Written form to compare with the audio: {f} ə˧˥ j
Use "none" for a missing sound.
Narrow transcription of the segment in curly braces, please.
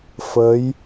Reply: f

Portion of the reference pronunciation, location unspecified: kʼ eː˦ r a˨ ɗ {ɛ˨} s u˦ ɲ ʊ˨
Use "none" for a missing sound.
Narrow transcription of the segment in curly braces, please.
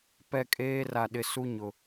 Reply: ɪ˨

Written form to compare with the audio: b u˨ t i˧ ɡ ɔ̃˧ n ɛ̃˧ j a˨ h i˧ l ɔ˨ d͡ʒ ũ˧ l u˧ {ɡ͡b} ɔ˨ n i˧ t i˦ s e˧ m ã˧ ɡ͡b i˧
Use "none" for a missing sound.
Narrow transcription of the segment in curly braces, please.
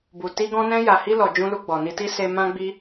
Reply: ɡ͡b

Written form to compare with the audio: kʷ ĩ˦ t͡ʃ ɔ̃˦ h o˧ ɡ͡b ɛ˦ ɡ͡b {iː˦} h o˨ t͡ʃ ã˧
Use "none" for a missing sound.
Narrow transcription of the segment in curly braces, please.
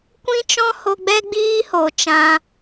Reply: iː˦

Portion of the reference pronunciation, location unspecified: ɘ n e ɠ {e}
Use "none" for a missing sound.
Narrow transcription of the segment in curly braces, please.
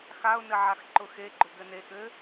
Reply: ɘ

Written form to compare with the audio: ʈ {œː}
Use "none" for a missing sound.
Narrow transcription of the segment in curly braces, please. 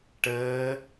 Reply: əː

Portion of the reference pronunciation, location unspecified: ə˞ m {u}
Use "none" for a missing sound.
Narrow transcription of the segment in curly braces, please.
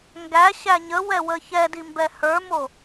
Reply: o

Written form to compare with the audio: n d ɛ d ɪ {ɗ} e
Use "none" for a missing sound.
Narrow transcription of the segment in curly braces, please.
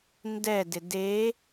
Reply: d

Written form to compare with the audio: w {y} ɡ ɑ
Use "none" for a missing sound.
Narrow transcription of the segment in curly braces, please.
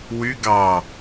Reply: y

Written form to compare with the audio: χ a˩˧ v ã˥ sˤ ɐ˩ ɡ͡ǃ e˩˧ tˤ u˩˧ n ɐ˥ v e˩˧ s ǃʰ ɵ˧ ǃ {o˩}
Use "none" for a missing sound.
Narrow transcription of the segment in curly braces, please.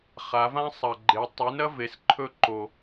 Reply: o˩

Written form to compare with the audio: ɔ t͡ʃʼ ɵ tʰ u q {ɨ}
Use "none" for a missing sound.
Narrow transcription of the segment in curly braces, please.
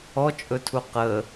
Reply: ə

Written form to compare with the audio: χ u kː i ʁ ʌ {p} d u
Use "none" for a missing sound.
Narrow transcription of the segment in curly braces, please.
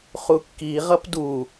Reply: p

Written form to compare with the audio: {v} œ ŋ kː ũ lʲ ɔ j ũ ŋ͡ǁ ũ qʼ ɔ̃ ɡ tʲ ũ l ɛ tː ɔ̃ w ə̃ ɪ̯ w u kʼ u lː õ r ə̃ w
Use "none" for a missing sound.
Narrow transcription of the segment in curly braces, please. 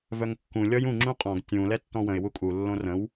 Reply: v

